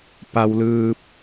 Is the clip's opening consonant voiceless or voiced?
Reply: voiceless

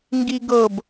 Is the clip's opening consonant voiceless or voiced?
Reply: voiced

